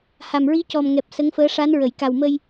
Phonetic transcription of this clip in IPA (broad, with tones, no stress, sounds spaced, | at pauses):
h a˨˩ m ɹ i˧˥ c ɔ˨˩ m ŋ ɛ˨˩ p̚ s ə˧˥ ŋ f əː˧˥ ʂ a˧˥ n ɹ ə˨˩˨ j k a˨˩ w m ə˧ j